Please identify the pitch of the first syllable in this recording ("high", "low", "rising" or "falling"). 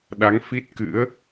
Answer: rising